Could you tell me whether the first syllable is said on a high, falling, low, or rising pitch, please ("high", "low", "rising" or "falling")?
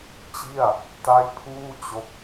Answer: falling